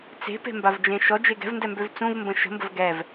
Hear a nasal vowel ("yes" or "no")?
yes